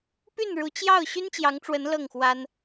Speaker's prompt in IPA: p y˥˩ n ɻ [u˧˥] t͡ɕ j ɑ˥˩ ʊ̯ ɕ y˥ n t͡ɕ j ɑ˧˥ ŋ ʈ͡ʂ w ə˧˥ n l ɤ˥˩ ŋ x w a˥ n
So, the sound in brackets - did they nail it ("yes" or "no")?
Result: yes